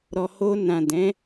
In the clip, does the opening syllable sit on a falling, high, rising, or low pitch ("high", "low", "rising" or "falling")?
low